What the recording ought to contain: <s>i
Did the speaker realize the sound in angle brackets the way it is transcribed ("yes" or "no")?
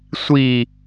no